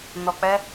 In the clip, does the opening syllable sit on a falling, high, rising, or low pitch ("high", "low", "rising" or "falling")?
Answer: low